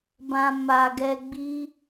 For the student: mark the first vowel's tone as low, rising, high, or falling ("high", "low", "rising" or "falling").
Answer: low